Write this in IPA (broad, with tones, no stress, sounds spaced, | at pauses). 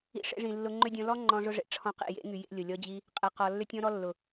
ḭ˧ ʂ ḛ˧ ʐ ĩ˨ lː ʊ˧ ŋ͡ǃ ʏ˦ dʲ ɔ̃˧ l ɔ˦ ŋ͡ǃ ɔ̃˦ ʐ ʊ˦ ʐ ḛ˨ ʈ͡ʂʰ ɔ̃˧ q ḭ˨ j ḛ˨˦ ŋ y˨ j ḛ˦ lʲ ʊ˨ lʲ ɔ˦ d͡ʑ i˦ | qʼ e˨ q ɔ˨ lː ʏ˦ tʲ ɔ̃˦ ɾ ɔ˦ lː ʊ˨